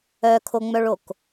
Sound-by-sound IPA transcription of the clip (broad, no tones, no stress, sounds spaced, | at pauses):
œ kʰ o ŋ͡m œ ɭ o k